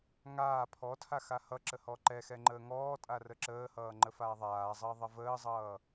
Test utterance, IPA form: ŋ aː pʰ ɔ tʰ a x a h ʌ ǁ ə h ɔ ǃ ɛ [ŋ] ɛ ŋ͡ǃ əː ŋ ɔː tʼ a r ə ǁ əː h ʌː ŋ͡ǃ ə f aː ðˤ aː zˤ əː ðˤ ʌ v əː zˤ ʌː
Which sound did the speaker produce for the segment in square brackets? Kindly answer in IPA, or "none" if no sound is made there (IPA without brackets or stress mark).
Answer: x